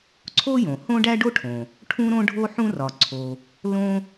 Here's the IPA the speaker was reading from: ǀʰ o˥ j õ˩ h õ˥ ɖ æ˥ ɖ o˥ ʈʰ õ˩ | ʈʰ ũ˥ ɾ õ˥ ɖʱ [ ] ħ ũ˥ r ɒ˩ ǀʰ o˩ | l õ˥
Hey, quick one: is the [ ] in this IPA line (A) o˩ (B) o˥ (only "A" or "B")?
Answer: B